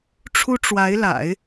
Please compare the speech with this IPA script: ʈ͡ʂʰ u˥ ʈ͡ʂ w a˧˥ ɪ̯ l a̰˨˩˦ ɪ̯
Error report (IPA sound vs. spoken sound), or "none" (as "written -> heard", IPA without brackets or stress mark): none